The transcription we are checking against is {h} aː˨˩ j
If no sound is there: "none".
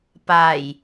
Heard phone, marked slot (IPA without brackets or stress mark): p